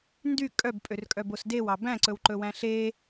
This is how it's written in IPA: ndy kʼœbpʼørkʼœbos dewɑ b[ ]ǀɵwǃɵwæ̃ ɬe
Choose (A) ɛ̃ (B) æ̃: B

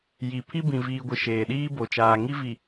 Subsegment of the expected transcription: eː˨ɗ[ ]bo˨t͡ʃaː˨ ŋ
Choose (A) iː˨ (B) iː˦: B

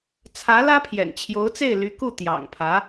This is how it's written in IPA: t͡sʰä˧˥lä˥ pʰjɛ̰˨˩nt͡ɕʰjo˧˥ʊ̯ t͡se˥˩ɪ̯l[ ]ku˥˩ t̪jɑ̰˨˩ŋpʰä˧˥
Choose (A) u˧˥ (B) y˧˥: B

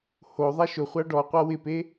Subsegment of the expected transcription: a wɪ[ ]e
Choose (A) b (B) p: B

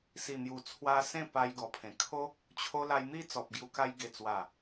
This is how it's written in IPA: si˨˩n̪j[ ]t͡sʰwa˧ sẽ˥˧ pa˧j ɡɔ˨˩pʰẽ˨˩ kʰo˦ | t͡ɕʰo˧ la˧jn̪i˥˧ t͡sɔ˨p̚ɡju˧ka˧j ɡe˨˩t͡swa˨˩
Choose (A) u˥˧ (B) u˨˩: B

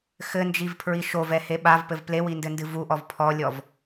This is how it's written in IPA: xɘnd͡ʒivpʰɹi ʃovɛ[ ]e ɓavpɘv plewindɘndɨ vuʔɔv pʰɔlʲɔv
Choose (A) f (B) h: B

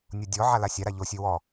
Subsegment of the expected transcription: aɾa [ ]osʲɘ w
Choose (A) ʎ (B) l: A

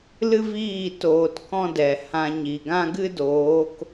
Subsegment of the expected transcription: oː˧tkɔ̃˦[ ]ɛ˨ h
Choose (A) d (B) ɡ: A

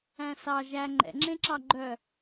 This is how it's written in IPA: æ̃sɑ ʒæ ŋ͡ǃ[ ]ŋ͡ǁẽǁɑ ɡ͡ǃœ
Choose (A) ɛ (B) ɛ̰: B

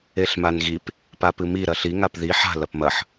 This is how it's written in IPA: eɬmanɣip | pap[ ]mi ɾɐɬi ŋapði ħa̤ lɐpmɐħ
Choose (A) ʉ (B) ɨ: B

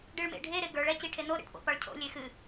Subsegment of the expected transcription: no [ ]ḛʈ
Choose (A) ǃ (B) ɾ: B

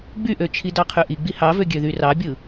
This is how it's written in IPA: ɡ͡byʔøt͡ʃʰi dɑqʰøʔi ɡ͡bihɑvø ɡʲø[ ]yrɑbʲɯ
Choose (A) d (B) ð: B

